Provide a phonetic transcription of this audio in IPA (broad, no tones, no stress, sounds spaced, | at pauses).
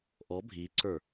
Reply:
ʔ ɔ bʱ i ǀ ə˞